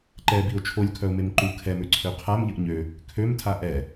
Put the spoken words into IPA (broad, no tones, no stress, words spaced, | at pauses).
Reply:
ǃɛbiʊ̯ t͡ʃʰolʲkʰœʊ̯mem ǃu kʰɛmøǀʰø qʰamʎəʔ ɲø | kʰømtʰa ʔɛ